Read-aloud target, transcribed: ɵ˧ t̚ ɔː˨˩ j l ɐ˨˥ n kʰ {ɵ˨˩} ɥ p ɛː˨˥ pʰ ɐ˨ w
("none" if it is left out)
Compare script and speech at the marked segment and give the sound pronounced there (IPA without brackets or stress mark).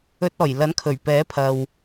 ɵ˨˩